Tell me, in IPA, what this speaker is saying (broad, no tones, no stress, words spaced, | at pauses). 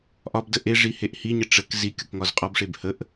ʔɒbdə ʔeʐi heʔhiɲə ʈ͡ʂək zi kʲʊkŋɒzqʼɒbʂeb həʔ